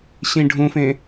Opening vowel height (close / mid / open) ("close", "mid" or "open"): close